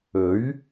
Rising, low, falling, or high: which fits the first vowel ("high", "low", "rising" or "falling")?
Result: rising